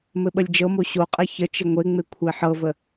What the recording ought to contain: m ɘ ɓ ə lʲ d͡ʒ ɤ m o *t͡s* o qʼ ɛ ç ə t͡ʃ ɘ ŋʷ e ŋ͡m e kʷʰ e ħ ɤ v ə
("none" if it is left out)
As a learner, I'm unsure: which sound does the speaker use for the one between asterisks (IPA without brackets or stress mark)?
ɕ